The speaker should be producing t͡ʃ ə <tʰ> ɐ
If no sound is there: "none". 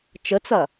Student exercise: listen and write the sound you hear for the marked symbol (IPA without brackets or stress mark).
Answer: t͡s